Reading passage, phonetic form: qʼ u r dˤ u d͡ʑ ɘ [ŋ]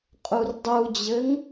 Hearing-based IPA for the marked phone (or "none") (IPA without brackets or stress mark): ŋ